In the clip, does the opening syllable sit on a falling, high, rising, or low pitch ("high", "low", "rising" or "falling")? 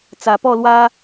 low